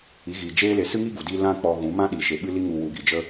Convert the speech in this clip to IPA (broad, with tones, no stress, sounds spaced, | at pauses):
i˨˦ ɣ iː˨ d͡ʒ eː˦ l e˧ s ɨ˦ ŋ i˦ ɡ u˨ d i˧ l ã˦ k͡p ɔ˧ ɣ ũ˨˦ m ã˦ ɗ i˨ ʃ e˨ ɓ ɨ˦ l i˧ ŋ u˨ w u˨ ɡ i˨ d͡ʒ ə˧